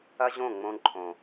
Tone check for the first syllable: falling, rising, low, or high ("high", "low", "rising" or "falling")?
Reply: high